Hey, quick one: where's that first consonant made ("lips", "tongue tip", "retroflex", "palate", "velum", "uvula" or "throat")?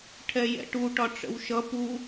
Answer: retroflex